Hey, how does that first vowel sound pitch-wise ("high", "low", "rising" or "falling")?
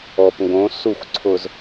low